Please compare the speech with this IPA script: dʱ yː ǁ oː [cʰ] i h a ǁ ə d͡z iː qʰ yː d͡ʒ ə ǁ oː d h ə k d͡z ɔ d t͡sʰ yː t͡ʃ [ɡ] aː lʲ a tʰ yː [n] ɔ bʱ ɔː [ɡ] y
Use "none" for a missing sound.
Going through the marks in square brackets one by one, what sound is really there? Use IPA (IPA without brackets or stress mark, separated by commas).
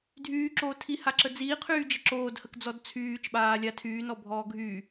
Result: tʰ, ɓ, n, ɡʱ